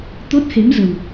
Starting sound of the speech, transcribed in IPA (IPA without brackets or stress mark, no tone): t̪